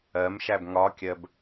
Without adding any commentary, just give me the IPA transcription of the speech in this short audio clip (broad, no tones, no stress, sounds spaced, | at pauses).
ɜ m ʃ æ b ŋ ɒ kʲ ɜ b